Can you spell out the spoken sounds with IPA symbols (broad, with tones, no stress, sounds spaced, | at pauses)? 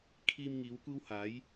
kʰ iː˧ m ŋ iː˨˧ w kʷ iː˥ w h aː˨˥ j